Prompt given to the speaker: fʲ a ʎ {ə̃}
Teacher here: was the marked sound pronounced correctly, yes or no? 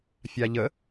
no